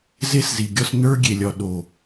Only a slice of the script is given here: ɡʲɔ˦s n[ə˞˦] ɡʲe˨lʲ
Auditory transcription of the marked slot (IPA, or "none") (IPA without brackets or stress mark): ə˞˦